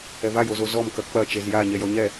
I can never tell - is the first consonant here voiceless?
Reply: no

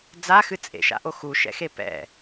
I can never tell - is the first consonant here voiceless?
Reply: no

